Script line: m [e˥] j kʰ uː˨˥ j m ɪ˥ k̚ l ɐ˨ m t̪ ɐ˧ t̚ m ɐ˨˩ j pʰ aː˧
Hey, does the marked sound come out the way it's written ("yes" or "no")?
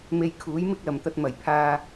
no